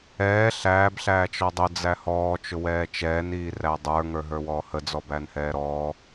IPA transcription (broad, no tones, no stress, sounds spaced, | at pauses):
ɛː ɬ æː b ɬ æː t͡ʃ ɔ dˤ ʊ d͡z æ h ɔː t͡ʃ ʊ w ɛː t͡ʃ ɛː n iː r æ dˤ ə˞ ŋ ə˞ ɦ ə˞ w ɔː h ə d͡z ɔ b æ n h ɛː ɾ ɔː